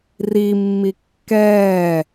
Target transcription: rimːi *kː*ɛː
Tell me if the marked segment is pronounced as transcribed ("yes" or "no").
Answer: yes